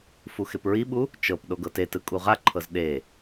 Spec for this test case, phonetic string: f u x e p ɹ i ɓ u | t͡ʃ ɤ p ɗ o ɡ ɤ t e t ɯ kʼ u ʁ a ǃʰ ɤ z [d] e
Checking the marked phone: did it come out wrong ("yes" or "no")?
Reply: yes